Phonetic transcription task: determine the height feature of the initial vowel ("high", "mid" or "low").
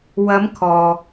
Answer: low